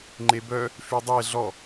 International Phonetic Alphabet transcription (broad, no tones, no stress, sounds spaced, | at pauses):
ŋ͡ǃ e b œ | f y dˤ e ɮ ɔ